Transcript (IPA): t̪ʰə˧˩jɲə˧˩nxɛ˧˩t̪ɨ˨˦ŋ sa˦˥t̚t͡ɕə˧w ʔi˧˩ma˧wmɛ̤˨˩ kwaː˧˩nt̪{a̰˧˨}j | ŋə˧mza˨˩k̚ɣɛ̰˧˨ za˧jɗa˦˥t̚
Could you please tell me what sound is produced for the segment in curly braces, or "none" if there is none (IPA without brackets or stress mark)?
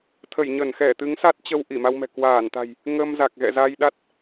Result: a̤˨˩